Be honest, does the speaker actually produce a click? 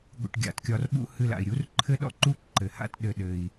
yes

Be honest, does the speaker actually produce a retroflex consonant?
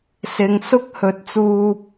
no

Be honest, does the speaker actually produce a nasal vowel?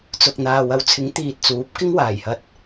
no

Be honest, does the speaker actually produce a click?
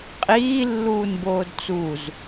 no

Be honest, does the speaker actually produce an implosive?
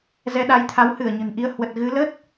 yes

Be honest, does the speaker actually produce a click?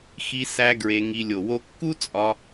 no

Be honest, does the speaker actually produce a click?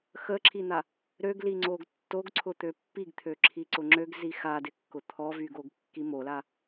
yes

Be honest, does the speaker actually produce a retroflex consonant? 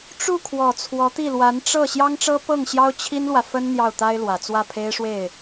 yes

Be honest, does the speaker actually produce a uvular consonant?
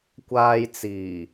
no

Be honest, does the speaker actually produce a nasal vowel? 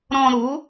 yes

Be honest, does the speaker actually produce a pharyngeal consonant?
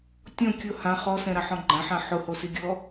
yes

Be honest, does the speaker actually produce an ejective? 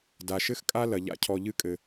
yes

